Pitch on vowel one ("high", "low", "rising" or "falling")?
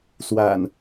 low